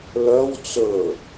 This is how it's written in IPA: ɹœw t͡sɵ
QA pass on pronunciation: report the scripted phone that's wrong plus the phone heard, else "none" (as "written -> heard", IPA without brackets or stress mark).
ɹ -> l